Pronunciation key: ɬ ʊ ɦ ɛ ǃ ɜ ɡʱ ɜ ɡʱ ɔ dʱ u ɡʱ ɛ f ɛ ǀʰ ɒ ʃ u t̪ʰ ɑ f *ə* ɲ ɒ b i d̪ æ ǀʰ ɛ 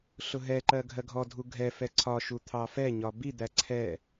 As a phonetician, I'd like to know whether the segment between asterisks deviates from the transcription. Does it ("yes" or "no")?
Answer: yes